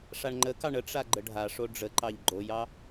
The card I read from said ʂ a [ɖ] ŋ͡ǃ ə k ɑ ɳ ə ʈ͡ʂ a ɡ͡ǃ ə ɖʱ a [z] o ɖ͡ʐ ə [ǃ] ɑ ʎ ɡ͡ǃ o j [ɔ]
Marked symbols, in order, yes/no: no, no, yes, no

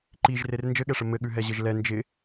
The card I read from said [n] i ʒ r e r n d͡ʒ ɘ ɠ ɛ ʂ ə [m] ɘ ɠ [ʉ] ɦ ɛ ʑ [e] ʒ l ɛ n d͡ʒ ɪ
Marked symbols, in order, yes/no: no, yes, yes, no

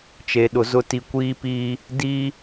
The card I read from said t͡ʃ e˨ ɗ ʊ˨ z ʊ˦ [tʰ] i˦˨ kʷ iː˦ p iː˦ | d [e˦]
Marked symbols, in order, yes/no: no, no

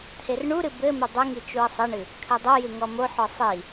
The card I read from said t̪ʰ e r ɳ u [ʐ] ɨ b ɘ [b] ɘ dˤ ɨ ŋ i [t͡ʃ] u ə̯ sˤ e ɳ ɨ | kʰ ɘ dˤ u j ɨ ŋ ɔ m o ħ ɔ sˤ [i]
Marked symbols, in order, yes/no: no, no, yes, yes

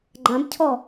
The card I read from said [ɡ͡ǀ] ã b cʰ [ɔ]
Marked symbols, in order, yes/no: no, yes

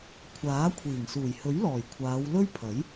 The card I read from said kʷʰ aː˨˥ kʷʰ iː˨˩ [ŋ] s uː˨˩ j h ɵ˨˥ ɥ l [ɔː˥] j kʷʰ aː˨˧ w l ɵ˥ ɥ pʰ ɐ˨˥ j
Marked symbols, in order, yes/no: yes, no

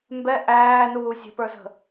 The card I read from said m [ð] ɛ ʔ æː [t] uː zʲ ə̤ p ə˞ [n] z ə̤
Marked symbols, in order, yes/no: no, no, no

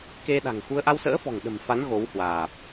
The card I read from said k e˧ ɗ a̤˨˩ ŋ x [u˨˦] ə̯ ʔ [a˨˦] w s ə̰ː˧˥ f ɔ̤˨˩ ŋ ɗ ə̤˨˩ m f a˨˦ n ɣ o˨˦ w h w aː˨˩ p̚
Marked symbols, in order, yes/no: no, no

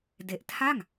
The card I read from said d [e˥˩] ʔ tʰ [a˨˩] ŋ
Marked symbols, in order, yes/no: no, no

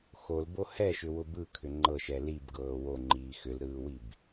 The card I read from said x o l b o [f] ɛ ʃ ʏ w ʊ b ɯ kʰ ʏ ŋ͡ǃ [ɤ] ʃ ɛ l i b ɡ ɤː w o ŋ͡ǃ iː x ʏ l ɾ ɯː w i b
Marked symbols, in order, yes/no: no, yes

